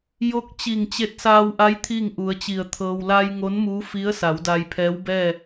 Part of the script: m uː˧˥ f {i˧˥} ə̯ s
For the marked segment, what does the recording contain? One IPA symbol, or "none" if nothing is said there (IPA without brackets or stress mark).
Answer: i˧˥